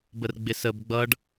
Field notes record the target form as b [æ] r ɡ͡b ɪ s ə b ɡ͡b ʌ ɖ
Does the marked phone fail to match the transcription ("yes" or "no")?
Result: yes